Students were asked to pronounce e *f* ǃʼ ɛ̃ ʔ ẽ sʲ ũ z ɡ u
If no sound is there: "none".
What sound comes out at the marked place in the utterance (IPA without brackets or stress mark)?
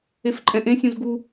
f